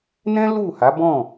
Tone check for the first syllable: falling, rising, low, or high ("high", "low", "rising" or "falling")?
high